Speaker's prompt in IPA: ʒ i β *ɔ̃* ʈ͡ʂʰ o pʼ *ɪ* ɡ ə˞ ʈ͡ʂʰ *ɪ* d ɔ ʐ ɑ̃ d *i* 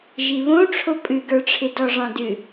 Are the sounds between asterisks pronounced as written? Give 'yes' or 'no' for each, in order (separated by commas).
no, no, yes, no